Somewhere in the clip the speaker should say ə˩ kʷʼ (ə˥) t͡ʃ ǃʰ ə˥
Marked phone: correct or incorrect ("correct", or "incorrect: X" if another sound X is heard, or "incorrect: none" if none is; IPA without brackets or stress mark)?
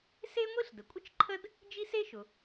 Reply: correct